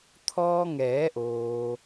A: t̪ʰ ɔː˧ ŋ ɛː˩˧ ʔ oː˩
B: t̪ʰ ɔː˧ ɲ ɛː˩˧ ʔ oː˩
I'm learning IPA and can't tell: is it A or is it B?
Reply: A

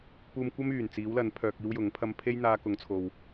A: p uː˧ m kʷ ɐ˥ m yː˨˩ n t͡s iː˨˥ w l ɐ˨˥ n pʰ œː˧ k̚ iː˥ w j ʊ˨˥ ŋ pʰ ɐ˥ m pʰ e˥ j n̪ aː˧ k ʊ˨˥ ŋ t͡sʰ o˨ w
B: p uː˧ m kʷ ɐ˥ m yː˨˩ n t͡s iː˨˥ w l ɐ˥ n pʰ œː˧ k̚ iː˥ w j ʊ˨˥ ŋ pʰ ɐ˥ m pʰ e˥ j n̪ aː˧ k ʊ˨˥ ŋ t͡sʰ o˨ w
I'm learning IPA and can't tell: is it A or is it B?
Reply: A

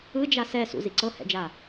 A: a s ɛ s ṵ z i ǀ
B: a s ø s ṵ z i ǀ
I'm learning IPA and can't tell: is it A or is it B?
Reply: A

